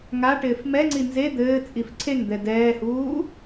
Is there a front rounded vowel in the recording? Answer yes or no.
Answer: no